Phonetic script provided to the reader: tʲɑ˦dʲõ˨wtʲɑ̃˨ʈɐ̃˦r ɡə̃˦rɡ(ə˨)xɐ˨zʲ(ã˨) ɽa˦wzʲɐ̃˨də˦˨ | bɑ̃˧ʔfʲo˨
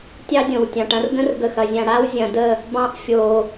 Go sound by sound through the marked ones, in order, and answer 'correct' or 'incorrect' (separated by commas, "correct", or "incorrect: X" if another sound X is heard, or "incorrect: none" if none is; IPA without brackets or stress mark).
correct, correct